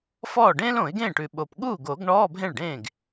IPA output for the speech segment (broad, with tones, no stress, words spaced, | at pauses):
fɔː˥˩ ɖẽː˥lõ˨˩˦ɪ̯ɡẽː˥˩ʈʉ˨˩ ɓo˨˩p ɠuː˥˩ɡo˨˩˦ɡ ɳɔː˧˥˧bʱẽ˥˩ɭɖẽː˥˩ɡ